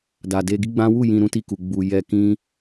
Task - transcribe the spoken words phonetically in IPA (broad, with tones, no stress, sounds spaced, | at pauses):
d a˨ d e˧ ɡ i˦ ɡ͡b ã˦ w u˦˨ j ĩ˧ ɾ ũ˦ t i˦˨ k u˨ ɡ͡b u˨ j ɛ˧ k ĩ˦